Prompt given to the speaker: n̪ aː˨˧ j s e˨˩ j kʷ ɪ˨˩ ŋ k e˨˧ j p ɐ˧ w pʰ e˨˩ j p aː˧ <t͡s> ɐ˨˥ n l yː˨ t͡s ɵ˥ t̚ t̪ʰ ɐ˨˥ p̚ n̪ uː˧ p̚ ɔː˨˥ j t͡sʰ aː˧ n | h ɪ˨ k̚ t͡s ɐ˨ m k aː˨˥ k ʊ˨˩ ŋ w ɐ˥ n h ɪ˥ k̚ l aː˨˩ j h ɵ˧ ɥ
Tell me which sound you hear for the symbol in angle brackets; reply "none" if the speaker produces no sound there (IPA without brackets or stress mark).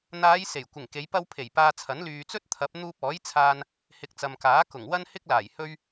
t͡sʰ